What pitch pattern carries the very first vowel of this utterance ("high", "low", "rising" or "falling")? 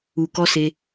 low